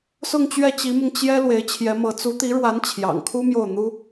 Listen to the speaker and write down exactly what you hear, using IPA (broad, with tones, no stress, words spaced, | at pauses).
sʊ˥˧ŋt͡ɕɥɛ˥˩t͡ɕi˧˥mʊ˧ŋ t͡ɕjɛ˥ lwe˧˥ɪ̯t͡ɕʰjɛ˧˥mɤ˧˥ t͡su˧˥t̪i˧˥ɻwa˧˥n t͡ɕʰjɑ̰˨˩ŋkʰu˥ mjo˥˩ʊ̯n̪u˥